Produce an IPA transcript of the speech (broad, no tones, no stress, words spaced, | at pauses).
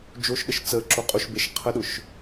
d͡ʒoʃɗəʃ t͡sə ǁoqʼoʃbeʃ qʰəɗʊʃ